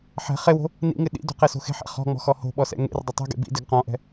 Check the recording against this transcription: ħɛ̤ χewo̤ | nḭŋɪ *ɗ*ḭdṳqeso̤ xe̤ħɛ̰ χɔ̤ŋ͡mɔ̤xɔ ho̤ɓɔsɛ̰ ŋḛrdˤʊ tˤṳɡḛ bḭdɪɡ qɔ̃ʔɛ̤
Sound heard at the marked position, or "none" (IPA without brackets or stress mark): ɗ